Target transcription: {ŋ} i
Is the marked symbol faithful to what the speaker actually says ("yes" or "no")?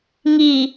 yes